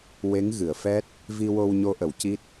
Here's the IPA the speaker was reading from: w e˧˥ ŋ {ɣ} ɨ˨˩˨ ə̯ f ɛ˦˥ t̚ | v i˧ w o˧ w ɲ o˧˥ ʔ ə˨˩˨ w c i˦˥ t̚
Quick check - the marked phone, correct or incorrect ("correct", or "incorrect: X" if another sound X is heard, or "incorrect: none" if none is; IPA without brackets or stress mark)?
correct